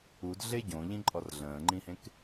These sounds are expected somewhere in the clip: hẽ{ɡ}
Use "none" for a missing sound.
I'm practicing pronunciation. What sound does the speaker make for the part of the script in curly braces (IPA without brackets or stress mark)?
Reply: k